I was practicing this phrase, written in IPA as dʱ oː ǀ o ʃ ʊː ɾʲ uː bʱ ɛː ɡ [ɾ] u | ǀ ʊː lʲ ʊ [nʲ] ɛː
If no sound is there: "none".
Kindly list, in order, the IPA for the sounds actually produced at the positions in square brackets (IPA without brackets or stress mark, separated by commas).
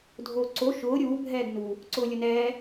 n, n